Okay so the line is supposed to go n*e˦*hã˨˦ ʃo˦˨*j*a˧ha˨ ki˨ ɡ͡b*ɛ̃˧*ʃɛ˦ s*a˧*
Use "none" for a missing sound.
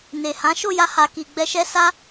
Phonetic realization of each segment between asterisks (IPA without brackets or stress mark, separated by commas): e˨, j, ɛ˧, a˦